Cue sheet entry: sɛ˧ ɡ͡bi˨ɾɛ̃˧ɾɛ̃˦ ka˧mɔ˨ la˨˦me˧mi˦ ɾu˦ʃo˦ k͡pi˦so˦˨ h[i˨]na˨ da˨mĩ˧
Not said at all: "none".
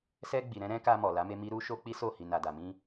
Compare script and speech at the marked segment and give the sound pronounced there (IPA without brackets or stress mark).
i˨